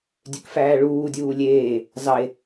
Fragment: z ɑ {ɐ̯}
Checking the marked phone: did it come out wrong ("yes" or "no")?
yes